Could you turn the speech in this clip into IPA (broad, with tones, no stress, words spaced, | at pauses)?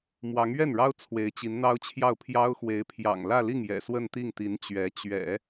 mwɑ˧˥ŋɥɛ˥˩nɻɑ˥ʊ̯ t͡sʰwe˧˥ɪ̯t͡ɕi˧˥nn̪ɑ˥ʊ̯t͡ɕʰjɑ˥˩ʊ̯ pʰjɑ˥ʊ̯xwe˧˥ɪ̯ pʰjɑ̰˨˩ŋlä˥˧li˥˩ŋjɛ̰˨˩ swə˥˧nt̪i˥˩ŋt̪i˧˥n t͡ɕɥɛ˧˥ t͡ɕɥɛ̰˨˩˦